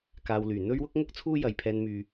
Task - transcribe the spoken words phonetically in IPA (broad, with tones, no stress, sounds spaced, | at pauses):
k aː˨ w l yː˨˩ n̪ ɵ˥ ɥ w ʊ˥ k̚ ŋ ʊ˥ k̚ t͡sʰ uː˥ j ɐ˨ j pʰ ɛː˧ n m yː˨